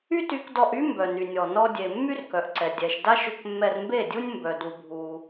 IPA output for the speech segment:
y˦ty˧kdɔ˧ʔy˦ mbœ˨ny˨nʲɔ˨ nɔ˧dʲe˨ mːy˦rkœ˨ʔǀɛ˨ dʲɛ˨ʃda˦ʃ ʏ˧kmːɛ˧rmbe˦˨dʲu˦nʲ mbœ˧du˧bʱu˧

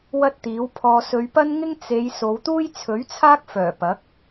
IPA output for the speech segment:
wɐ˥t̚t̪iː˨˥wpʰɔː˧ sɵ˨˧ɥpɐ˥nŋɪ˥ŋ t͡se˨˧j so˨˧wt̪uː˥jt͡sʰɵ˨˥ɥt͡sʰaː˥k̚ fœː˨˩ pɐ˨˥k̚

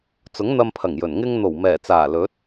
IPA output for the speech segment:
t͡sʊ˨˥ŋn̪ɐ˧mpʰɐ˨˩ŋjɵ˨˩n ŋɪ˧ŋn̪o˨˩wmɛː˨˩t͡saː˨˩ lɵ˨˥t̚

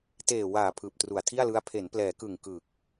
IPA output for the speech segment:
teː˨˩waː˨˩ pʰɯː˨˩p̚tru˨˩a̯tʰi˥˩a̯lɯ˦˥a̯ pʰe˩˦nplɛː˩˦kɯ˨˩ŋ kɯ˨˩k̚

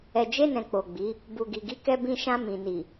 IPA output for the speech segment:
ɛ˨d͡ʒe˧nɛ̃˨ k͡po˨ɡ͡bi˨˦ | bu˨ ɡi˨ɡi˨˦kɛ˧ bĩ˧ ʃã˧ mĩ˨ ni˨

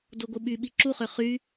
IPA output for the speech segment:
doɡʷɯɓyɓi ǁuχø χy

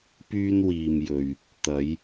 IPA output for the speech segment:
pyː˧nwiː˨mjɵ˨ɥ | t̪ɐ˨˧j

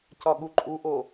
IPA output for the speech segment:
cɒɠuǃʼuʔo

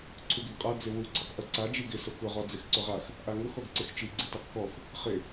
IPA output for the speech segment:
ǀʰuɡɪɡqʼa d͡zɪwu ǀʰɪqʔuǀa d͡ʒiɡɪ sʊkʊ ʁɔd͡zɪxǀʊʁax | ʔaŋʊx ɔɡǀɪxt͡ʃi ɡ͡ǀitaqkɔx | χɪ

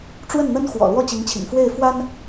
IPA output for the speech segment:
ʈ͡ʂwə˥˩nn̪ə˥n xwɔ̰˨˩lwɔ˥˩ t͡ɕi˧˥ŋt͡ɕʰḭ˨˩ŋ fwe˥˩ɪ̯fwa˥n

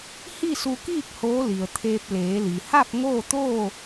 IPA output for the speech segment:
hi˥˨su˧kiː˥˨k̚ hoː˧˥ li˩ə̯t̪ʰeː˧p̚ leː˩˧li˩ ha˥˨p̚ŋoː˥˨t̪oː˥˨

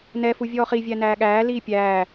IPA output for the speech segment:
nɛfu vʲɔːχivʲæ næːɠæː liːpʲæː

